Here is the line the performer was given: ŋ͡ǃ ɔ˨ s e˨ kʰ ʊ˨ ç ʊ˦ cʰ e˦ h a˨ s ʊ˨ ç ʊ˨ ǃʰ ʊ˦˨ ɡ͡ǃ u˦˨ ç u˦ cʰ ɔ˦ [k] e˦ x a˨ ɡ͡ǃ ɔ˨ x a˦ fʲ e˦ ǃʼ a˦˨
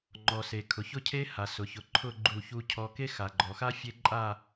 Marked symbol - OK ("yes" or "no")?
yes